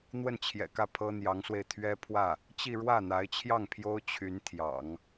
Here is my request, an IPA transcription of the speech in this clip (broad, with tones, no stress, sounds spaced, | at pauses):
n̪ w ə˥˩ n t͡ɕʰ j ɛ̰˨˩ k ä˥˩ pʰ ɤ˥ n̪ j ɑ˧˥ ŋ s w e˧ ɪ̯ t̪ʰ ɥ ɛ˥ pʰ w ä˥˩ | t͡ɕ i˥˧ ɻ w ä˥˩ n̪ a˧˥ ɪ̯ t͡ɕʰ j ɑ˥˩ ŋ pʰ j o˥ ʊ̯ t͡ɕʰ y˧˥ n t̪ʰ j ɑ̰˨˩˦ ŋ